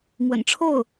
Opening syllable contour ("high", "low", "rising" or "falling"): low